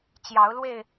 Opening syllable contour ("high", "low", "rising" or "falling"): rising